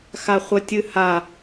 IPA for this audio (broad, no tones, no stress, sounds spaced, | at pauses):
x a χʷ ə tʲ ɨ h a